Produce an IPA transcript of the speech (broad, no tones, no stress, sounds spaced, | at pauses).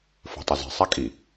f o̤ tˤ ɐ z i̤ sˤ a kʼ i